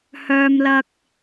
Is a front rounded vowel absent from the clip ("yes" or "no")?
no